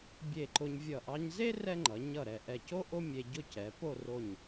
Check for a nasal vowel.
absent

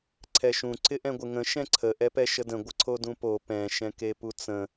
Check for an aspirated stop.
present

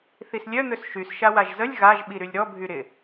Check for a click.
absent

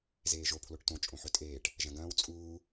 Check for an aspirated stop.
present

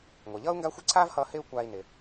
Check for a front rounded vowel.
absent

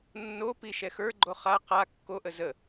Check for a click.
present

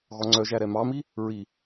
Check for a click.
present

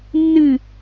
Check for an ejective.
absent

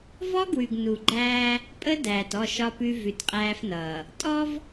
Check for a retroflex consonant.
absent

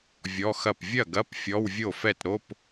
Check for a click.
absent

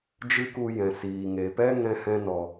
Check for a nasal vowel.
present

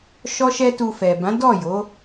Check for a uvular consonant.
absent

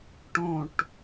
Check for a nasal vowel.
present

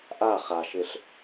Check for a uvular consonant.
present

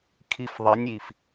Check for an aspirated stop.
present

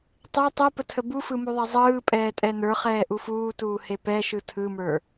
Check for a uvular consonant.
present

